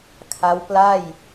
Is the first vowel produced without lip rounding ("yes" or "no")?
yes